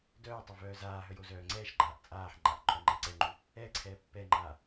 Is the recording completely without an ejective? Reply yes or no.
no